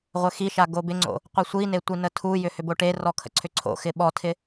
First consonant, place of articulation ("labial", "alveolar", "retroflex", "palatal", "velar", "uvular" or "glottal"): uvular